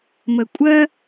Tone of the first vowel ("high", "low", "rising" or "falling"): low